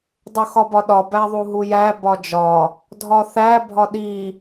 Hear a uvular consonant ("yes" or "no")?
no